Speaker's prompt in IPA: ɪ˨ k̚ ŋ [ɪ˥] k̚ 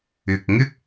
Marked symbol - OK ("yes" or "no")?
yes